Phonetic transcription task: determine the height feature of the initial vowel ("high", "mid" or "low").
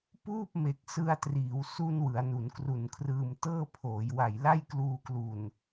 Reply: high